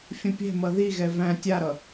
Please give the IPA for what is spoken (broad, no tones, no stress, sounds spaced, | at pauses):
fʲ ə̃ pʲ ɛ̤ m ʌ ð i ɣ ɛ v æ̃ tʲ a ɾ ʌ